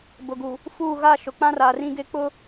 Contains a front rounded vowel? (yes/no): no